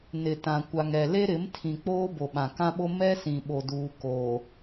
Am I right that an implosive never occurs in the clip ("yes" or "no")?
no